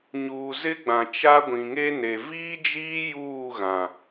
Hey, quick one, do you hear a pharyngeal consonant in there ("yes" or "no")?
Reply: no